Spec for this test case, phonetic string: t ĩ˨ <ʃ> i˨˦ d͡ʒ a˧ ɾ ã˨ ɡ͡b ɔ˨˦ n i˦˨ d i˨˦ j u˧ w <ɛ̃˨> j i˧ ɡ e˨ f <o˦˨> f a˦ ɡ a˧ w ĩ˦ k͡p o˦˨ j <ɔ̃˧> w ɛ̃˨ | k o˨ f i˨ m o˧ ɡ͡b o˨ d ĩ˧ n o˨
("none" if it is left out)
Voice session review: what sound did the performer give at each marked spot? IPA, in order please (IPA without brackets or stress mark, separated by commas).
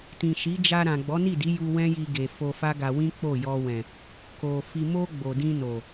ʃ, ɛ̃˦, o˧, ɔ˧